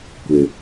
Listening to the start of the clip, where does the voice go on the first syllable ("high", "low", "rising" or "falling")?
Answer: low